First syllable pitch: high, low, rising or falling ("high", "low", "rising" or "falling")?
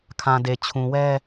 low